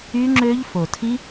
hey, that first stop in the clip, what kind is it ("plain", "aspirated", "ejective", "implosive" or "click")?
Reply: click